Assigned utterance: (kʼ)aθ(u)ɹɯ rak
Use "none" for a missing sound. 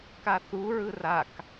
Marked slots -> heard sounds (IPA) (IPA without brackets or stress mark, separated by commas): k, u